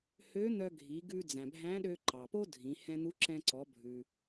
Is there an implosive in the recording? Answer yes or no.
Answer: yes